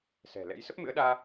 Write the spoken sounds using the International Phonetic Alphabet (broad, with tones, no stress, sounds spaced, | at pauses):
s ɛ̤˨˩ l ɛ̰˧˥ j s ə˦˥ p̚ m ɨ̰˧˥ ə̯ ɗ aː˧